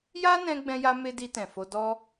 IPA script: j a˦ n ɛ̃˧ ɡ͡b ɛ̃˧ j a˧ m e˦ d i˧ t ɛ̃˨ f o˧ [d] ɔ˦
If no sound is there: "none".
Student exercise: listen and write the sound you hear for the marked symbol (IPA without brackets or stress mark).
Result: d